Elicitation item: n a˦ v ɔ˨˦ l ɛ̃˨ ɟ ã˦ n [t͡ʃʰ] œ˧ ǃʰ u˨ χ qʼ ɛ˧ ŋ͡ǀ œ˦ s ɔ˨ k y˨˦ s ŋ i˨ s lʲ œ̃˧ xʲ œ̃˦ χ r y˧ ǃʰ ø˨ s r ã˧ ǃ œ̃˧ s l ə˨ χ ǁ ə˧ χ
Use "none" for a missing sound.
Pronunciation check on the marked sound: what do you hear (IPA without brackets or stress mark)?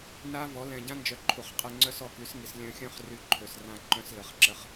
d͡ʒ